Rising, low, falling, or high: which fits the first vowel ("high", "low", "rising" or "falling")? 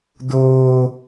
high